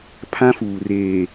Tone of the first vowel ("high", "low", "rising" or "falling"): high